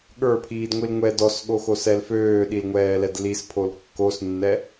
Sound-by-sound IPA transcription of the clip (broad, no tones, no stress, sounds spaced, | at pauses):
ɠ ə˞ pʰ iː d ŋʷ i l ŋʷ ɛ d ɔ s ɠ o x o s ɛ l f øː ɗ i l ŋʷ ɛː l ɛ d l i s pʰ o l kː o s nː ɛ